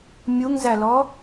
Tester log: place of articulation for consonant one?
labial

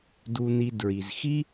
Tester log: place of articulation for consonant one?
alveolar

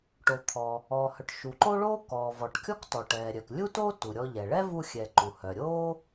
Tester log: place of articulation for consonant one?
retroflex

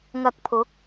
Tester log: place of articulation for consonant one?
velar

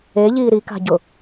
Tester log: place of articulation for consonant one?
palatal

